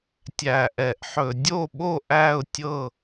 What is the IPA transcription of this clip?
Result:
tʲ æ˨˩ ʔ ɛ˧˩˧ ʔ ħ ɵ˧˩˧ dʲ o˥˨ ɓ o˥˨ ʔ æ˥˨ ʊ̯ tʲ ɤ˥˨

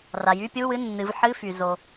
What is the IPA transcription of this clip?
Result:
r a˩ j y˧˥˧ pʲ u˧˥˧ w ɨ˧˥˧ nː ɨ˩˧ v ħ ɨ˧˥˧ f y˩ z o˩

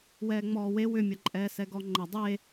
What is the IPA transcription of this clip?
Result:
w ɛː ŋ͡m ɔː w e w ʏ mʲ ɐ ǃʼ ɛː s ɛ ɡ ɔ ŋ͡ǃ ɐ dˤ e

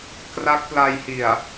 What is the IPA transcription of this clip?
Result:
k r a˦˥ k̚ p l a˧ j h i˨˩ a̯

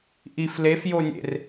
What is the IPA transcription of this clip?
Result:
ʔ i f l e f j o nʲ ḛ r

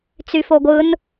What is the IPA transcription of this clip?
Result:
t͡s y f o ɡʷ ɯ n

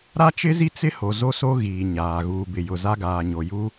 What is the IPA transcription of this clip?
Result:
ɾ a˦ t͡ʃ ɪ˦ z i˦ t͡s ɪ˦ h o˨ z o˦ s o˦ ɣ iː˨ ɲ aː˨ ɣ uː˨ b ɪ˨ j ʊ˨ z a˦ ɡ aː˨ ɲ o˨ j u˦

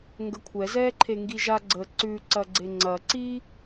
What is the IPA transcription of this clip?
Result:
ŋ ɡ ə kʷʰ ɛ z ɛː ǃʰ e ŋ ɡ i ʒ a ɡ͡ǀ ə ǀ ʉ ǀ ɐ ɡ͡ǀ e ŋ͡ǀ ɐ ǀ i

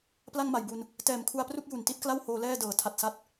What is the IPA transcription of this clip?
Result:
p l a˥˩ ŋ m a˨˩ j b u˧ n | t ɛː˨˩ m kʰ u˧ a̯ p r u˥˩ k̚ j u˨˩ n t i˥˩ t̚ k l a˥˩ w h oː˧ l ɛː˥˩ d ɤː˩˦ tʰ a˨˩ t̚ s a˦˥ t̚

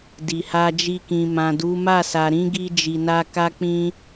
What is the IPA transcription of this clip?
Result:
d i˨ h a˧ d͡ʒ i˧ k ĩ˨ m ã˨ d u˨˦ m a˦˨ s a˨ ɾ ĩ˨˦ ɡ i˧ d͡ʒ i˨ n a˧ k a˦ k͡p ĩ˧

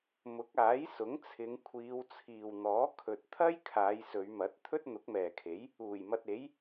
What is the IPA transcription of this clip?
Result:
m ʊ˨˥ k̚ aː˨˥ j s ʊ˨˥ ŋ t͡sʰ ɪ˨˧ ŋ kʷʰ iː˨˧ w t͡sʰ iː˨ w n̪ ɔː˨˥ kʰ ɵ˨ t̚ t̪ʰ ɐ˥ j kʰ aː˨˧ j s ɵ˨˧ ɥ m ɐ˨˥ t̚ t̪ʰ ɵ˥ t̚ n̪ ʊ˨˥ k̚ m ɛː˨ kʰ e˨˥ j | uː˨˩ j m ɐ˧ t̚ e˨˥ j

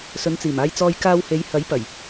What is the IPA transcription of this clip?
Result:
s ɵ˨˧ n t͡s iː˨˩ m aː˧ j t͡s ɔː˧ j k aː˧ w h e˨˧ j h ɐ˨˥ j p ɐ˨˩ j

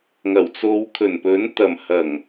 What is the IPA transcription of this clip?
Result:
ŋ ɐ˨˩ w t͡s o˨˧ w kʰ ɵ˨˩ n p ɵ˨˥ n t̪ ɐ˨˩ m h ɐ˨˩ ŋ

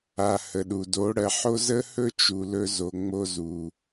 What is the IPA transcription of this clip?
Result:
a˨ h ə˨ ɗ u˨ d o˨˦ ɽ ɜ˧ ħ o˦ z ə˦ h ɵ˦ t͡ʃ u˨ l ɵ˧ z o˨ ŋ͡m o˧ z u˨

